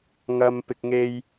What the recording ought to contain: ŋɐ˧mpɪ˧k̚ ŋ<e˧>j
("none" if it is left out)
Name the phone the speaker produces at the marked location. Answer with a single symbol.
e˧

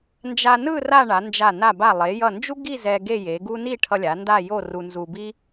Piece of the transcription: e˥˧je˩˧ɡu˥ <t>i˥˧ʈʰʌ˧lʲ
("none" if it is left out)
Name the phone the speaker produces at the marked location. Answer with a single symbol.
n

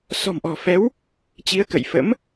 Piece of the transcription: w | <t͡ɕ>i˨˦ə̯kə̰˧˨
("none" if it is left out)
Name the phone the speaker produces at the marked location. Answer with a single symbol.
t͡ɕ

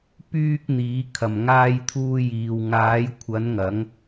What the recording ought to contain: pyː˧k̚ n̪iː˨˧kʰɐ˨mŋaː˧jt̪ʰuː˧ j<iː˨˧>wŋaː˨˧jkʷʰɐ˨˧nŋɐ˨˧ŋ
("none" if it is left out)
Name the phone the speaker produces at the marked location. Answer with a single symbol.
iː˨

